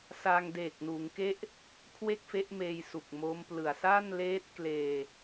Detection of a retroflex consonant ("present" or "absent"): absent